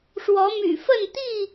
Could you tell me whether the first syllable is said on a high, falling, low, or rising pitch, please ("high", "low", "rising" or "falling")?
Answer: rising